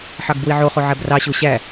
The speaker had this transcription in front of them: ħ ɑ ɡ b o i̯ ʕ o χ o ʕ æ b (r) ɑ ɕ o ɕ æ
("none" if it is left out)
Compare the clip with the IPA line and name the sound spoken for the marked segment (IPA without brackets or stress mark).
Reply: r